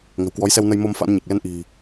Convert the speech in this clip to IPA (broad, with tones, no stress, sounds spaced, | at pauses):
ŋ ə̤˨˩ w k w ɔ˨˦ j s ɛ˧ w n ə˧ j m o˧ m f a̰˧˥ n ɲ e˨˩ k̚ l ɛ˧ n ʔ i̤˨˩